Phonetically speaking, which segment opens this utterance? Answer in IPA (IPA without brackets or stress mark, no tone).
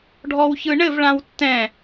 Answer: ɖʱ